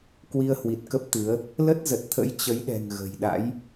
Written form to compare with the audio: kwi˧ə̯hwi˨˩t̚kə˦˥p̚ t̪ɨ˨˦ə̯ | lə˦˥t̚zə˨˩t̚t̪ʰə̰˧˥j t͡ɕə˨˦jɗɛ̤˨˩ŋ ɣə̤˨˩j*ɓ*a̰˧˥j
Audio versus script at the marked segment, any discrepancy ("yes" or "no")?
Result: yes